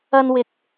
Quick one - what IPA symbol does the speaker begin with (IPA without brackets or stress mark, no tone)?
ɐ